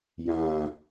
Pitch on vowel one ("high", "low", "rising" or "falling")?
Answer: low